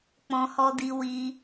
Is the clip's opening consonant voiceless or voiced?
voiceless